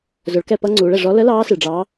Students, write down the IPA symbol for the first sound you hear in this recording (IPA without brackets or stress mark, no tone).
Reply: z